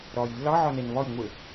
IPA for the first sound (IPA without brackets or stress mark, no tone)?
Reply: ɾ